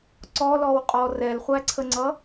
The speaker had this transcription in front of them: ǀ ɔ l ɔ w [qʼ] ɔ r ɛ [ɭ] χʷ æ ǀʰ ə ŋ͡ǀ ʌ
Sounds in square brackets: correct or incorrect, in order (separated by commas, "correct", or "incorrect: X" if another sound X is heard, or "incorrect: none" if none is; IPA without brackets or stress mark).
correct, incorrect: l